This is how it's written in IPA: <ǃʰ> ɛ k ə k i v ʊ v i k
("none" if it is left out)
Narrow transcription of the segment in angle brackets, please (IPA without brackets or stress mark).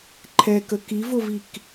ǃʰ